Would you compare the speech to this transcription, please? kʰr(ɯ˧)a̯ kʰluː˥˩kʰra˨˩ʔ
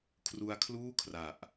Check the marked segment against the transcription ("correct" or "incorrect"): incorrect